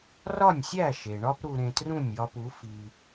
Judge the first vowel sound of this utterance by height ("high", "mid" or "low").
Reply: low